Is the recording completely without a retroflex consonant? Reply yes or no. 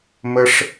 no